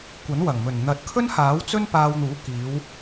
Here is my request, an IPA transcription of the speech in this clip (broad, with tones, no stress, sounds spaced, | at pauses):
kʷ ɐ˨˥ n w ɐ˨˩ ŋ m ɵ˨˩ n n̪ ɐ˨˥ t̚ kʰ ɵ˥ n h aː˨˥ w t͡s ɵ˥ n p aː˧ w n̪ uː˨˥ k iː˨˧ w